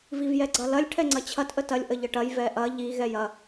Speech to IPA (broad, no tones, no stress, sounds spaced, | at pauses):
v i v j ɛ ɡ͡ǀ ɐ l ɐ lʲ ʈʰ ɛ ŋ͡ǀ ɐ t͡ɕʰ ɐ t ʔ ə t ɐ lʲ ʔ ə ʎ ə ʈ ɐ j v ɛ ʔ ɐ ʎ i ɣ ɛ j ɐ